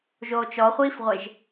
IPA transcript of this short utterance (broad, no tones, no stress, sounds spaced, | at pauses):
ʒ oː t͡ʃ ɔ χʷ iː f ʁʷ e ʒ